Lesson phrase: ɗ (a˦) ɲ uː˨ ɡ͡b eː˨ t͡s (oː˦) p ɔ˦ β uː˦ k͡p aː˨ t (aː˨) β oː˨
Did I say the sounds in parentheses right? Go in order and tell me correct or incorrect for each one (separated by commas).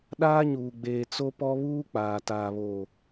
incorrect, incorrect, correct